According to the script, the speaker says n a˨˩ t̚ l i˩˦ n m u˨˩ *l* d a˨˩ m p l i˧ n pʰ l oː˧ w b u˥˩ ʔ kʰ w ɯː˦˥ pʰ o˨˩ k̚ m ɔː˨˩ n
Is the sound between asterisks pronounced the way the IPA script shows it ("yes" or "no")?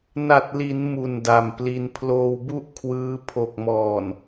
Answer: no